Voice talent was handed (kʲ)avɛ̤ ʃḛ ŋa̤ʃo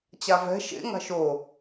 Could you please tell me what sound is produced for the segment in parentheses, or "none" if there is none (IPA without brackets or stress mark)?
t͡ɕ